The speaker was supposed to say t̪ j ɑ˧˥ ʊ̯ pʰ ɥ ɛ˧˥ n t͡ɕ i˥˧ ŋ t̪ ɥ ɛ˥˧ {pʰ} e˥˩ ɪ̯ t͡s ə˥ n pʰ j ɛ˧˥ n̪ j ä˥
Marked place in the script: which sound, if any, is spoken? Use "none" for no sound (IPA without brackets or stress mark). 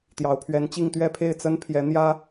pʰ